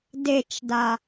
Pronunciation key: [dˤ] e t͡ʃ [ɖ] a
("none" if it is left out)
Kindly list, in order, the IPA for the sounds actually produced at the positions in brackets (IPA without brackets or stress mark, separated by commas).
d, d